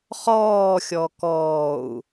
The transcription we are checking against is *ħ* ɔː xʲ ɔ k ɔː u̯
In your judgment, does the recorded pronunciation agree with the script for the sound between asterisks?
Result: no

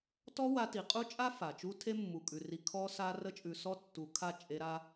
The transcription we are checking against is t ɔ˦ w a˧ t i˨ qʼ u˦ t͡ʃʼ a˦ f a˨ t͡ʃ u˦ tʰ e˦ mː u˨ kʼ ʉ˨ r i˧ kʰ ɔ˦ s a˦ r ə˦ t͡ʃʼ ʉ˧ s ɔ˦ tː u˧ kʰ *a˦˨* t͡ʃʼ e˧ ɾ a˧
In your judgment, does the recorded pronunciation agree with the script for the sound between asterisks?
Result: yes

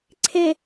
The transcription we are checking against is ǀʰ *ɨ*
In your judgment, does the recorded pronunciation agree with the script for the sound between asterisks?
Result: no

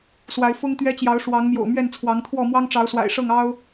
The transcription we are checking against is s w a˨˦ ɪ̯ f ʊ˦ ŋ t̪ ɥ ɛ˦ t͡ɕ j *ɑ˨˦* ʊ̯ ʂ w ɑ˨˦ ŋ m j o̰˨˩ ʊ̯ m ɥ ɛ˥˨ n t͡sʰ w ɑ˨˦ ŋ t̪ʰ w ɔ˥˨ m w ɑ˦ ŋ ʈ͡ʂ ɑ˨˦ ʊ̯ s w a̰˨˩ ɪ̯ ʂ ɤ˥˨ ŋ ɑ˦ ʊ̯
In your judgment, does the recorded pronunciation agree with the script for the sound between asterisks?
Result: yes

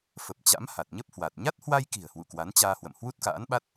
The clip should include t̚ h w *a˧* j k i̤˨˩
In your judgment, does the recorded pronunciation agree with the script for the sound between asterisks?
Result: yes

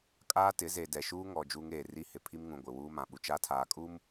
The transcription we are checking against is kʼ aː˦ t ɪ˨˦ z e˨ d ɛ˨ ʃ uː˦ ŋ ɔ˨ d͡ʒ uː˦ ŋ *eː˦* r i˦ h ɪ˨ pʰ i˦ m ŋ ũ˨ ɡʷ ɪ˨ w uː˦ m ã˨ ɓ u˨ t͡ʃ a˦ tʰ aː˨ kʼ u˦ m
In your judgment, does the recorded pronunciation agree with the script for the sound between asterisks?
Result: no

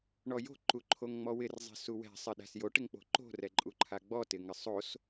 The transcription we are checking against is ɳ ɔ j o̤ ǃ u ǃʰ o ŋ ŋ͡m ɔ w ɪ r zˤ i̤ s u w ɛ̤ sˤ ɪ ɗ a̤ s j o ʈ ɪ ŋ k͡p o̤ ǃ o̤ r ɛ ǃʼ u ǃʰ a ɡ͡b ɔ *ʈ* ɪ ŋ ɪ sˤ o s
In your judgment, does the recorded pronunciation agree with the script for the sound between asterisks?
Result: no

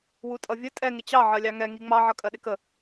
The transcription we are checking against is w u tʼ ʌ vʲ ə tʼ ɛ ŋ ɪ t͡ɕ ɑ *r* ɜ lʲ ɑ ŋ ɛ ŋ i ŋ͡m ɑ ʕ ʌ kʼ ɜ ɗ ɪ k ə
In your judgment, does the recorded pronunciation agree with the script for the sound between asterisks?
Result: no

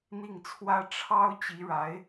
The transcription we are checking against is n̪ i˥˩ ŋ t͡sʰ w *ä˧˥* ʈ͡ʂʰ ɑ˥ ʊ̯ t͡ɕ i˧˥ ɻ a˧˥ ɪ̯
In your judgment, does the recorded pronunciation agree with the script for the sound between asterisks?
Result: no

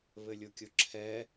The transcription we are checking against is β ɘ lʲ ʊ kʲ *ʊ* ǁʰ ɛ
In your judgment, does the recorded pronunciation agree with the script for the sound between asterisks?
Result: yes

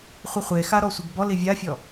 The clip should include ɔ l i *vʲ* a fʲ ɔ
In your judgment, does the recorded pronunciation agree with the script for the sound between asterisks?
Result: yes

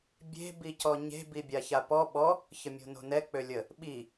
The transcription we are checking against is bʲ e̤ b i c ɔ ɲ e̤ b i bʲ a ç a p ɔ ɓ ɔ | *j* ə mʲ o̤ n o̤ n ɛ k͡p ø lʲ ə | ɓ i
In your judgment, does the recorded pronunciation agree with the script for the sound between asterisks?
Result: no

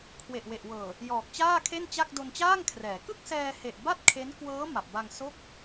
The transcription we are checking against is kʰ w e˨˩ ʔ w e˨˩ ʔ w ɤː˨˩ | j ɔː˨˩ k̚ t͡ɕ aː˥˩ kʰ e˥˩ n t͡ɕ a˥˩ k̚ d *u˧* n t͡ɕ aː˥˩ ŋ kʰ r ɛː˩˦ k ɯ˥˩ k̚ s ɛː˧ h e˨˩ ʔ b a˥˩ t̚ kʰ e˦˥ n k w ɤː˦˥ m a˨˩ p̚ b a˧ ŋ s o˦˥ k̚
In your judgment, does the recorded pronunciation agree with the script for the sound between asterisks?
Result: no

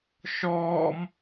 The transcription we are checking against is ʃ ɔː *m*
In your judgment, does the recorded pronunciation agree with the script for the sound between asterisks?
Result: yes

